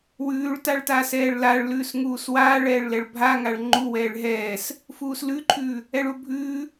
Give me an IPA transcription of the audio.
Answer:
w ʉː ɭ t a ɭ t aː s ɛː ɭ l a ɭ l ʉː s ŋ uː s w aː ɭ ɛː ɭ l ɛ ɭ bʱ a ŋ a ɭ ŋ͡ǃ u w ɛː ɭ ɦ ɛː s | f uː s l ʉ ǃʰ ʉː | ɛ ɭ u bʱ ʉː

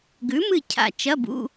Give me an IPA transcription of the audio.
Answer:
ɡ ʉ˨˥ m ɨ˦˨ cʰ a̰˦˨ t͡ʃ ɐ˧˥˧ b ṵ˧˥˧

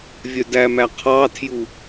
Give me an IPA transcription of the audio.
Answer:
vʲ œ d æ m æ qʰ ɑ tʰ j u

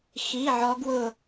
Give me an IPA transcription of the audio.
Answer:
x i˧˥˧ ʕ ɔ˦˥ ɡ w ʊ˥˧

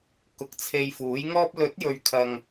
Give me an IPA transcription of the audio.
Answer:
k ʊ˧ k̚ t͡sʰ e˧ j f uː˨˥ j ŋ ɔː˥ p̚ l ɵ˨˥ t̚ j ɵ˨ ɥ kʰ ɐ˨ ŋ

